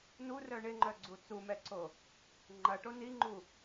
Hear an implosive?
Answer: no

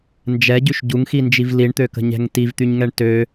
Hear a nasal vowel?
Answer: no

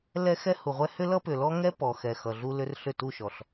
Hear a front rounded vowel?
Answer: yes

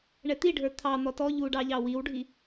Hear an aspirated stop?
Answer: yes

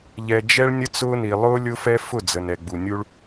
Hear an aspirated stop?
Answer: no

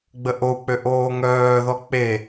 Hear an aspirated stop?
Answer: no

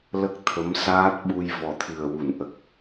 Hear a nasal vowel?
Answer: no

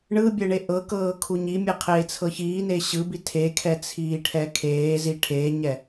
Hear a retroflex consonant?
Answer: yes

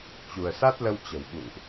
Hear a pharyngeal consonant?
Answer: no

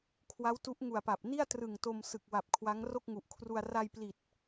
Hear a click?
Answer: no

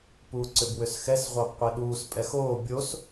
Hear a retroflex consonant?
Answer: no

